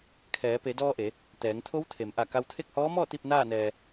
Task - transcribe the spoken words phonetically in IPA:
kʰ ɛː˩˧ p e˩˧ d ɔː˧ ʔ e˩˧ | t̪ ɛː˩˧ ŋ t̪ʰ o˧˥ w t̪ʰ e˩˧ m ʔ a˧˩ k a˧ w t̪ʰ e˥˨ k̚ h ɔː˧˥ m ɔː˥˨ t̪ i˥˨ p̚ n aː˥˨ n ɛː˧

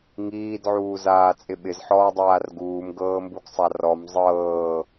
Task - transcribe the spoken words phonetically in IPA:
ŋ iː d ʕ uː z aː t͡sʼ ɪ ɓ ɪ z ħ ɔː dˤ aː r ɡ uː m ɡ ɤː m b u ɡ sˤ a r ɔ m zˤ ɤː

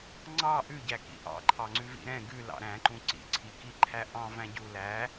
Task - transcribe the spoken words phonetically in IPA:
ŋ͡ǀ ɑ ʔ ʉ ɟ æ k ḭ ʔ ɑ̰ ǃʰ ɑ ŋ͡ǀ ʉ v ḭ ɾ ɛ̃ ɡ ʉ l ɑ̰ ɾ æ̃ ǃ ũ ǀ ḭ ǀʰ i k i ǃʰ æ ʔ ɑ̃ v æ̃ ɟ u l æ

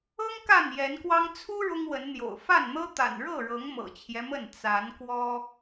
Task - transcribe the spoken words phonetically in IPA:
ɤ˦ ŋ k a˥˨ n j ɛ˨˦ n k w ɑ˦ ŋ t͡sʰ u˦ ɻ ʊ˦ ŋ w ə˨˦ n n̪ j o̰˨˩ ʊ̯ f a˥˨ n n̪ ɤ˦ t̪ a̰˨˩ n ɻ ɤ˥˨ ɻ ɤ˨˦ ŋ m ɤ̰˨˩ t͡ɕʰ j ɛ˦ m ə˥˨ n t͡s a˨˦ n k w ɔ˦

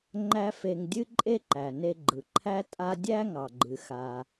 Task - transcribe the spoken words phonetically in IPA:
ŋ͡ǃ æ˥ f e˧ ŋ dʲ ɨ˥ ǃʼ e˥ ǃ æ˩ n e˧ ɡ͡ǃ ɯ˩ ǃʰ æ˥ tʼ a˥ dʲ æ˥ ŋ ɑ˩ ɡ͡ǃ ɨ˩ x a˩

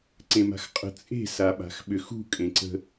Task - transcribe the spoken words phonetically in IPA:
ǀ ẽ m a̤ x qʼ ə̤ t͡sʼ e̤ s a ɓ a̤ x ɓ ʏ x ṳ kʼ ẽ ǀ ə̤

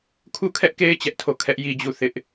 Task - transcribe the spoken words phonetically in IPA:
kʰ u˦˨ kʰ ɛ˦ ʔ k e˦ ɪ̯ t͡ɕ ɛ˦ ʔ tʰ o˦˨ kʰ ɛ˦ ʔ j i˦ d͡ʑ u˦˨ θ ɪ˦ ʔ

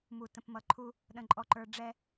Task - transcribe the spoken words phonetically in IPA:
m u˨ t ə̃˨ p m ʌ˨ ǃʰ u˦ | ɗ ə̃˨ ǃʼ ɔ˨ ǃ ə˞˨ ɖ͡ʐ ɛ˦

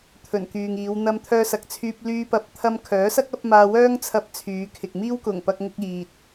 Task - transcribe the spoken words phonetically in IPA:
t̪ʰ ɵ˨˩ n k yː˨ ŋ iː˨˧ w n̪ ɐ˧ m t̪ʰ œː˧ s ɐ˨˥ k̚ t͡sʰ yː˧ p̚ l yː˧ p ɐ˨˥ p̚ t̪ʰ ɐ˧ m kʰ œː˨˥ s ɐ˥ k̚ ɐ˨˥ p̚ m aː˧ w œː˥ ŋ t͡sʰ ɐ˧ p̚ t͡sʰ yː˨˧ kʰ ɪ˨ k̚ m iː˥ w k ʊ˨˩ ŋ p ɐ˧ k̚ ŋ ʊ˧ k̚ iː˨ t̚

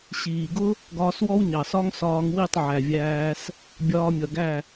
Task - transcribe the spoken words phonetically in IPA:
ɕ iː˨ ɡ ʊ˦ | ɡ ɒː˧ s w ɔ˦ w ɲ ɑ˨ s ɒ˦ ŋ s ɒː˧ ŋ w i˦˨ tˤ ʕ æ˨ vʲ æː˧ s | bʲ ɒː˧ mʲ ʌ˨ ɡ æ˦˨

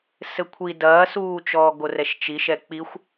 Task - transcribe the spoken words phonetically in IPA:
s ɘ kʷʰ i d ɐː s uː t͡ʃ ɔː ɡ o r ɛ ʃ t͡ʃ i ʃ ɛ k͡p i xʷ

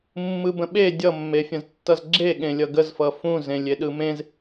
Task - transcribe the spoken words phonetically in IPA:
mː ɯ b ə̃ ɓ e dʲ ʌ mː e fʲ ə̃ z tː ʌ z ɡ͡ǁ e ɠ ẽ lʲ ʌ ɡ ə z f ʌ f ũ z ẽ lʲ e ɗ ɯ m ẽ z

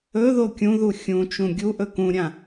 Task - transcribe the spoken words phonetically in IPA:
ɵ ð o kʲ ũ ð u xʲ ũ t͡ʃ ũ ɡʲ u ʔ ɵ k ũ ɾʲ ã

